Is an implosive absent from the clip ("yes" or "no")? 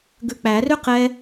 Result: yes